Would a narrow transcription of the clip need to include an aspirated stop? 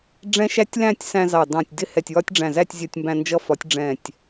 no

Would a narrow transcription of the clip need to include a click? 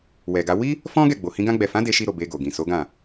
no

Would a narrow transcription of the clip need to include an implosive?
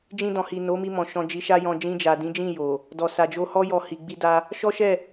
no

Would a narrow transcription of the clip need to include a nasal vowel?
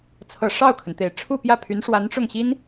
no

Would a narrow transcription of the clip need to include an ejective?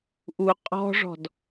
yes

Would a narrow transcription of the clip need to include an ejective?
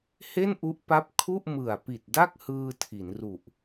no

